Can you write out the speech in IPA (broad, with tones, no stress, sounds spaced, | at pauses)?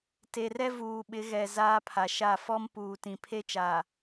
t e˨ r ɛ˦ v uː˨ ɓ ɪ˨˦ ɣ ɛ˨ z aː˦ pʰ a˨ ʃ a˦˨ f ɔ˦ m p uː˨ t ĩ˨ pʰ e˦ t͡ʃ aː˨